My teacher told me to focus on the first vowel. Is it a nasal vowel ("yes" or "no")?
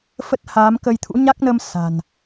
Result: no